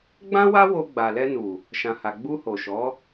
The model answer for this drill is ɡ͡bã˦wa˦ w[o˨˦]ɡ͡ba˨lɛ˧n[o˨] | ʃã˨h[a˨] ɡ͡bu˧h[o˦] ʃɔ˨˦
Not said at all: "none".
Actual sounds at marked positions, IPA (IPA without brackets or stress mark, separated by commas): o˧, u˨, a˨, o˨